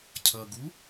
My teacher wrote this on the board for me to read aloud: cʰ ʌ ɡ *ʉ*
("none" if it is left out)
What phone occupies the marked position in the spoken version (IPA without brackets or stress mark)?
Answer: u